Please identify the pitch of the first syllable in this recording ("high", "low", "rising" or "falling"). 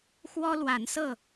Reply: high